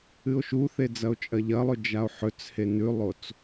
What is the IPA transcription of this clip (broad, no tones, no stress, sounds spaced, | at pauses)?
ɨ o̯ ʃ u θ e d͡z ɐ o̯ t͡ʃʼ ɐ ʎ ɐ lˠ ɵ d͡ʒ a o̯ ħ ɵ t͡s h e n ʉ lˠ o t͡s